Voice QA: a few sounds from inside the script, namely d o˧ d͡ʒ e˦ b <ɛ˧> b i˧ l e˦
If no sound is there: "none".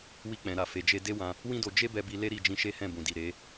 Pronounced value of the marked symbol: ɛ˧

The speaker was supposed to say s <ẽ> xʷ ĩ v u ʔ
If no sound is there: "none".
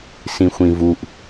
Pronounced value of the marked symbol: ĩ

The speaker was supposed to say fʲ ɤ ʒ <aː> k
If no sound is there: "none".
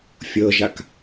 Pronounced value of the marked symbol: a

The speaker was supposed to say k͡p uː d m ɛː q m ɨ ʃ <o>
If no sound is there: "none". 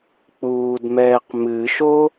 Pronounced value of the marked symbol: o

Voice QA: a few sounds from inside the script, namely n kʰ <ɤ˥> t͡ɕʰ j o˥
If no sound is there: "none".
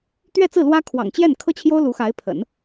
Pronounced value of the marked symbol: ɤ˥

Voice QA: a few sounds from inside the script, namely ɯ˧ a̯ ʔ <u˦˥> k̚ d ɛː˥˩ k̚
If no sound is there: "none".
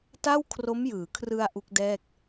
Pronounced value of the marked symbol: u˦˥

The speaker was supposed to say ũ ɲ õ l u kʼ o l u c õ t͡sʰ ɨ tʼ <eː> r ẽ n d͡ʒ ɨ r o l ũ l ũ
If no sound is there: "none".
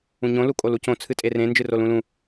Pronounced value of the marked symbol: e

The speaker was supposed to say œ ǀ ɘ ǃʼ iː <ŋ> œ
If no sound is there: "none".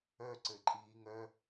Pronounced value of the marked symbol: ŋ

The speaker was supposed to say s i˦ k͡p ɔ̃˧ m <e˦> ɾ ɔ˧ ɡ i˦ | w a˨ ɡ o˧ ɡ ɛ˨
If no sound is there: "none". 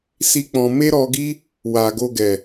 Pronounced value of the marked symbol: e˦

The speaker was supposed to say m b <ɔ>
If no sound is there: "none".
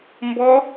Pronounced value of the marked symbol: ɔ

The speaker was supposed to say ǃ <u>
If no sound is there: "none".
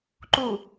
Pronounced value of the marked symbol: u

